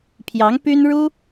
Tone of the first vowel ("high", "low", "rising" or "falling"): rising